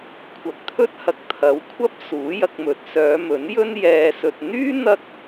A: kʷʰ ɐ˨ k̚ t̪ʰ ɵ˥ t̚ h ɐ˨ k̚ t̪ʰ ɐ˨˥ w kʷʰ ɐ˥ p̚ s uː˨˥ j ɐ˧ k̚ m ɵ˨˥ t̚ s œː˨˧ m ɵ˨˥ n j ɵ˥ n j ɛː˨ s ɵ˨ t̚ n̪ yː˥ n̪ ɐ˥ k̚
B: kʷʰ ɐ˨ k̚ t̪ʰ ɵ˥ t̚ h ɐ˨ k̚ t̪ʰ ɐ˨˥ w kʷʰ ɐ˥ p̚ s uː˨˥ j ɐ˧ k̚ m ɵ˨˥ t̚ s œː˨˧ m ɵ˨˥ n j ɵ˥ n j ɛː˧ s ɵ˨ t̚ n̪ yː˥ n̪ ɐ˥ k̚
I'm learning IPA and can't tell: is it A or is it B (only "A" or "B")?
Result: A